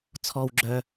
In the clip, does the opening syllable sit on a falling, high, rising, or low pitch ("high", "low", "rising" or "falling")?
high